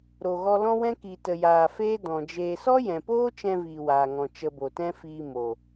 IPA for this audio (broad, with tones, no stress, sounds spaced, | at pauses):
ɾ o˧ ɣ ɔ˦ l ɔ̃˦ w ɛ̃˦ k i˧ t ə˧ j aː˧ f eː˦ d ɔ̃˨ d͡ʒ eː˧ s ɔ˦ j ɛ̃˨ p oː˦ t͡ʃ ɛ̃˧ v iː˨ w aː˨ ŋ ɔ̃˨ t͡ʃ ə˧ b o˨ t ɛ̃˦ f iː˧ m o˨